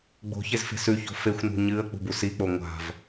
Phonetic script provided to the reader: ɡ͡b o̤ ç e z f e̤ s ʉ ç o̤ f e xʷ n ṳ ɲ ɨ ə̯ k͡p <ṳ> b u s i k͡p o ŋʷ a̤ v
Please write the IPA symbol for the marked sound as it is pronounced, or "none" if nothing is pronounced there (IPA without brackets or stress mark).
ṳ